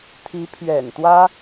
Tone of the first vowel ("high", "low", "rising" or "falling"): rising